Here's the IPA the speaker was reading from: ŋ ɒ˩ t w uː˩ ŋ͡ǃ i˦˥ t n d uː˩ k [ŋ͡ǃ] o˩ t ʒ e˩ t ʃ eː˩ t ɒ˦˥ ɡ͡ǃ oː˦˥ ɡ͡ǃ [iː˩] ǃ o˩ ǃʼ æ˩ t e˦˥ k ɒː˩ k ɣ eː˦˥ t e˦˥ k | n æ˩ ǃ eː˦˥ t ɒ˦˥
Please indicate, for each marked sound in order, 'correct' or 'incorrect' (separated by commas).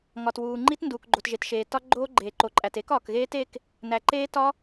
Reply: incorrect, incorrect